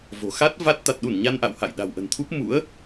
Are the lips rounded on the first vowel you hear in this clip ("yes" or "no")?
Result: yes